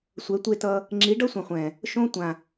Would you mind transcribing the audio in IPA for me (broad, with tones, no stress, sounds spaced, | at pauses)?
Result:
sʷ ɛ˨˦ tʷ e˦ t ʌ˦ | ŋ͡ǁ i˨˦ ɖ ʌ˦ sʷ ẽ˨ χʷ ɛ̃˨ | ʃ õ˦ tʷ ã˨